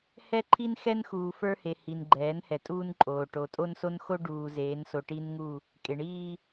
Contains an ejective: yes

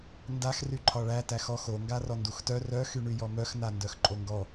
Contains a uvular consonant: no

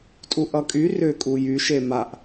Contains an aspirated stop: no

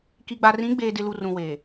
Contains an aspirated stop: no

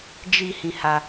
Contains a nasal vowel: yes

